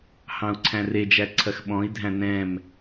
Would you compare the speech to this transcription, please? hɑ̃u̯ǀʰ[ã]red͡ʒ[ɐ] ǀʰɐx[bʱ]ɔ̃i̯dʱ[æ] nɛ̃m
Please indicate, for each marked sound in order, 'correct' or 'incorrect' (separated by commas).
incorrect, incorrect, incorrect, incorrect